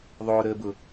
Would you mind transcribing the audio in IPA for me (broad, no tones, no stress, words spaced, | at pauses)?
ðˤʊː ɾəːbʊ